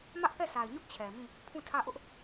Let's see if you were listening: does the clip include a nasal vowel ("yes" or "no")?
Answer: yes